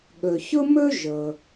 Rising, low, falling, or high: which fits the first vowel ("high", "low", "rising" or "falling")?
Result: low